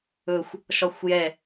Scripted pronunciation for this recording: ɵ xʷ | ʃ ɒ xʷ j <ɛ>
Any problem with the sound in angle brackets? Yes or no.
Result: no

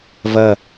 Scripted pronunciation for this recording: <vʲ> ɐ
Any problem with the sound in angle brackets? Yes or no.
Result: yes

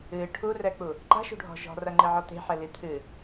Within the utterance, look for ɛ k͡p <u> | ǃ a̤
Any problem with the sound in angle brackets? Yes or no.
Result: no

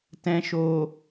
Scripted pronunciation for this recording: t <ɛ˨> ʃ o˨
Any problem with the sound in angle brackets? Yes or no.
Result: yes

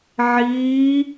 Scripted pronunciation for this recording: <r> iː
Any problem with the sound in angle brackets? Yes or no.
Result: yes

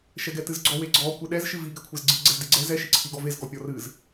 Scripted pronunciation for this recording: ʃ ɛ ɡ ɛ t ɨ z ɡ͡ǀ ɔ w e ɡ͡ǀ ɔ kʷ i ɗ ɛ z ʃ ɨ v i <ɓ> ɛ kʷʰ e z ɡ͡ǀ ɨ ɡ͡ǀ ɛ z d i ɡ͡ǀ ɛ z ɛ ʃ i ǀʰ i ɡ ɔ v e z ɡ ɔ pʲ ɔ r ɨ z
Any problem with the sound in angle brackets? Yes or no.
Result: yes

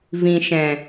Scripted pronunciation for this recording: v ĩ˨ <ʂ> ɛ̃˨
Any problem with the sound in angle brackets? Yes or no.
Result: yes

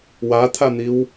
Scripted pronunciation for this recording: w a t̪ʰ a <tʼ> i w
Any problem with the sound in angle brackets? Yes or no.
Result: yes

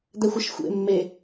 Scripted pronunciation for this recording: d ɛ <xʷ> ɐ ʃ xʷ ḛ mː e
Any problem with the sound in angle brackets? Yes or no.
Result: no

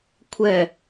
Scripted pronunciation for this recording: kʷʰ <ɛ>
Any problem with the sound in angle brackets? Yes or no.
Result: no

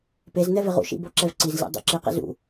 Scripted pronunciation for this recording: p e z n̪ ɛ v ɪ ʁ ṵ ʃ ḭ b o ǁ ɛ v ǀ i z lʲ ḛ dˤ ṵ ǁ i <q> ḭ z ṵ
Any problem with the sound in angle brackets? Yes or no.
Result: no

